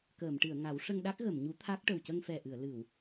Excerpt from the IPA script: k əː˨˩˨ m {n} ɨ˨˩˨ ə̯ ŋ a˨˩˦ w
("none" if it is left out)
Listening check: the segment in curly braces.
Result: ʈ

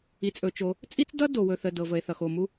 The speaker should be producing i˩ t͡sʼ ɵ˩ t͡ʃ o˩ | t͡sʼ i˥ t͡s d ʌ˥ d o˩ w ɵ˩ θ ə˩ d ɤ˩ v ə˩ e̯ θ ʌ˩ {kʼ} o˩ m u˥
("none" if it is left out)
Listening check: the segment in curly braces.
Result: x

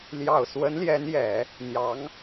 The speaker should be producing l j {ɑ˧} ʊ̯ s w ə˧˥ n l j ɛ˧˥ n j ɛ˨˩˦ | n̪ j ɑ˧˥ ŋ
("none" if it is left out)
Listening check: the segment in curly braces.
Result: ɑ˨˩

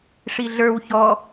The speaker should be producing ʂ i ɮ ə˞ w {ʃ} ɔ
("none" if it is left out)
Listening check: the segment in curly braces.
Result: ç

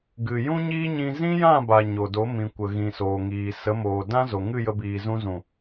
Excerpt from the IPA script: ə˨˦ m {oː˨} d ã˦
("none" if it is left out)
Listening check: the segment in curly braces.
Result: oː˨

